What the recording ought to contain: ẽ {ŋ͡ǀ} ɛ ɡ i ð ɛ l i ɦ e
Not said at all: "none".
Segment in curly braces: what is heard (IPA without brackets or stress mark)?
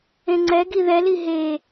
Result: ŋ͡ǀ